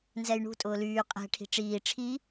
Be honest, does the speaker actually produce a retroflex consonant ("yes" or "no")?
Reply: yes